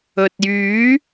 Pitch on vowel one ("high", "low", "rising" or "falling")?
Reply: low